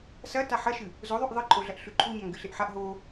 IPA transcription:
s ɐ t a ħ ɐ ʃ ɨ | z o ðˤ ʉ ʔ ðˤ ɨ ǃʼ o ɮ ɐ ʔ ɬ ʉ ǃʰ u ɲ a ŋ ɡ ɨ ɬ e ʔ ħ a ʔ ɦ o

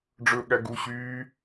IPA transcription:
ɖ͡ʐ ɵ ɠ æ ɡ u ɕ yː

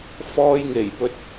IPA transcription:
f ɔː˧ j ŋ e˨˩ j p ɵ˧ t̚

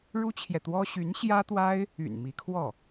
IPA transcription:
ɻ u˥ t͡ɕʰ j ɛ˨ t̪ w ɔ˥ ɕ y˧˥ n ɕ j ä˥ t̪ w a˥ ɪ̯ | y̰˨˩ n m i˧˥ kʰ w ɔ˥˩

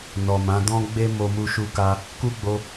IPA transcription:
n ɔ˨ m ã˨˦ d ɔ̃˦ ɡ͡b e˦ m o˧ m u˧ ʃ u˧ k a˧ | k u˦ ɡ͡b o˧

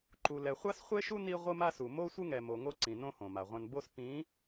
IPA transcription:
ǃ u˨ l ɛ˨ χʷ a˦ s χʷ e˦ ʃ u˦ n i˦ ʁʷ ɯ˦ m a˦ s u˨ m o˦ sʷ ɯ˦ ŋ ɛ˨ m o˨ ŋ o˦ ǀ ĩ˨ n õ˦ h õ˨ m a˨ ʁʷ ɛ̃˦ n b o˦ s p ĩ˨˦

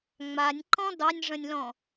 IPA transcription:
ŋ͡m a nʲ ǃ ɔ̃ d ɑ nʲ ʐ ə̃ nʲ l ɔ̃

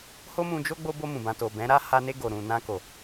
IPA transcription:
h o˦ m ũ˧ d͡ʒ o˦ ɡ͡b o˧ b o˧ m ũ˨ b ã˧ t o˨ b ɛ̃˨˦ ɾ a˦ h a˧ n e˧ ɡ o˨ ɾ ũ˨ n ã˧ k o˨

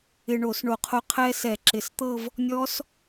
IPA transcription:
ɪ˧ ɳ o˧˩˧ s ɳ o˧˩˧ qʰ o˧ qʰ ɛ˦˥ s ɛ˧˩˧ ǁ ɪ˨˩ s t̪ ɤ˥˧ v | nʲ ɔ˦˥ s

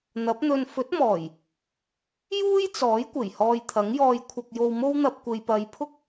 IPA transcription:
n̪ ɐ˨˥ p̚ n̪ ɵ˧ n f ɵ˨˥ t̚ m ɔː˨˩ j | j uː˥ j t͡s ɔː˨˥ j kʷ e˨˩ j h ɔː˧ j t̪ʰ ɐ˨˥ ŋ j ɔː˧ j kʷʰ ɐ˧ k̚ j o˧ w m o˥ w n̪ ɐ˧ p̚ kʷ e˨ j p ɐ˨˧ j pʰ ʊ˥ k̚

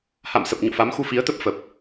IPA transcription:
h a̰˧˨ m s ə˨˩ p̚ ɲ o̰˧˨ f a˨˦ m x u˧ f i˨˦ ə̯ t̪ ə˦˥ p̚ f ə˨˩ p̚

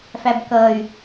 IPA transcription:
f æ b k ʌ y̯

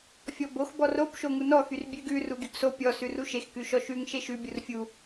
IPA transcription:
fʲ ɔ b o x b ɔ r o b ʃ o ŋ u n ɔ x y r bʲ ʉ ɡ ʉ r u ɡ y ɡ s o pʲ ɔ s ʉ r u ʃ e x k ʉ ʃ ɔ ʃ ʉ ŋ ʃ e ʃ ʉ bʲ u r fʲ u

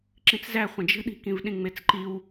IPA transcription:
ǁ ĩ t͡s z æ χʷ ə̃ d͡ʒ ə̤ ɗ i̤ k ĩ v ɗ ĩ ŋ͡m e t͡s ǃ i w

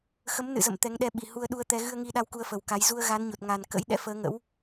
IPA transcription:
x ə˨˦ m n ɨ̰˧˨ z ə̰˧˨ m t̪ ɛ˨˦ ŋ ɗ ɛ˧ ɓ i˨˩ h u˧ ə̯ ɗ u˧ ə̯ t̪ ɛ˧ ɣ ɨ˧ ə̯ ŋ i˧ ɗ a˧ w k u˧ ə̯ f ə˨˩ w k a˨˦ j z u˧ ə̯ ɣ a˨˦ n ɲ o˨˩ t̚ ŋ a˨˩ n k ə̰˧˥ j ɗ ɛ̰˧˥ f əː˨˦ ŋ ə̰˧˥ w

